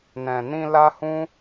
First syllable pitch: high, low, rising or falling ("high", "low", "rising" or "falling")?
low